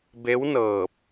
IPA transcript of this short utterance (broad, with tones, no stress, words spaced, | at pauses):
be˧˥wnɤː˧˩p̚